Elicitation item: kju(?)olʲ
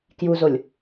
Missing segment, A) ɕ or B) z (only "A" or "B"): B